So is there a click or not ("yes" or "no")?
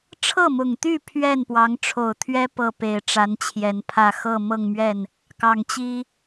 no